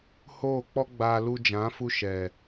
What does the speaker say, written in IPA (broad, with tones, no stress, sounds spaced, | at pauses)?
h oː˦˨ k͡p ɔ˦ ɡ͡b aː˧ l u˧ d͡ʒ ã˨˦ f u˧ ʃ ɛ˨